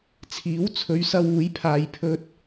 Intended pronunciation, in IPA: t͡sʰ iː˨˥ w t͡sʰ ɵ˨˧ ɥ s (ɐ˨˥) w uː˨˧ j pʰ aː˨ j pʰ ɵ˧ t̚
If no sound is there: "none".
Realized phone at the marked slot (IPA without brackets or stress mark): ɐ˧